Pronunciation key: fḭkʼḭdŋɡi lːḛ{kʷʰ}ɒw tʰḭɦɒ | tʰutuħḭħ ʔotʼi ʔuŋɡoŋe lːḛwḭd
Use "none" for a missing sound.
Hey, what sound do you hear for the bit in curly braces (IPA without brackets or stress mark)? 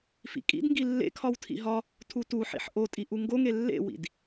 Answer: kʰ